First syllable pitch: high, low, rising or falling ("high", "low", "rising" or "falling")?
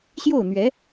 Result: falling